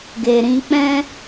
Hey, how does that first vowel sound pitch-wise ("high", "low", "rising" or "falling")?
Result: low